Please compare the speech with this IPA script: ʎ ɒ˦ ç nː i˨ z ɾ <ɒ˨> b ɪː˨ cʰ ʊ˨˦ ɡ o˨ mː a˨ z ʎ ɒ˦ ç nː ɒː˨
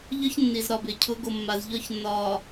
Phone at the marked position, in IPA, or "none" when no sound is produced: ɒ˨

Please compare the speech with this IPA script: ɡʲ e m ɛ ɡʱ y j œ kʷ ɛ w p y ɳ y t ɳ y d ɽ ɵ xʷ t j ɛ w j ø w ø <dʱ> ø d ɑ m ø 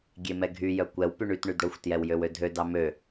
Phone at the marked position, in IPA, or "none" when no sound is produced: dʱ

